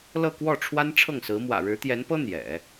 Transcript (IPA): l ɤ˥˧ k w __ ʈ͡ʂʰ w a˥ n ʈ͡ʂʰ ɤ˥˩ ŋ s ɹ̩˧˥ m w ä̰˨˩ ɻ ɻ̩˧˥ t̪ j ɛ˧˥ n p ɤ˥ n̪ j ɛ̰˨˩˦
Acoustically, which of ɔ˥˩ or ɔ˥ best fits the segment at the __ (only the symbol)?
ɔ˥˩